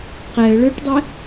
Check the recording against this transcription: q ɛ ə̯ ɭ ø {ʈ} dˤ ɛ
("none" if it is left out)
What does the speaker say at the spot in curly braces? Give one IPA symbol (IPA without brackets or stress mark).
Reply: ʈ